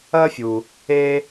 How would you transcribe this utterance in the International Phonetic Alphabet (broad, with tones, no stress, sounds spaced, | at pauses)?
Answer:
ɐ˦ fʲ u˨ | e˦